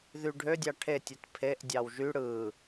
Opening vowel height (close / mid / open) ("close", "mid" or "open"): close